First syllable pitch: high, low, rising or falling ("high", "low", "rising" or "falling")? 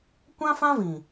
high